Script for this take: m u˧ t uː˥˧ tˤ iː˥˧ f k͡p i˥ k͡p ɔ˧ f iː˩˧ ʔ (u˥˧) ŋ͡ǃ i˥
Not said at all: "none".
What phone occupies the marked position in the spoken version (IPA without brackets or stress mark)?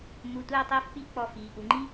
u˩˧